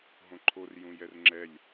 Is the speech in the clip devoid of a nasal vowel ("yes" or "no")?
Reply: no